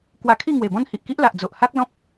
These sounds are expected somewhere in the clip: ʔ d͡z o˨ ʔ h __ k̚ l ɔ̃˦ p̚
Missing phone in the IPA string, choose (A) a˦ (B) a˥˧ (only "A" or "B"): A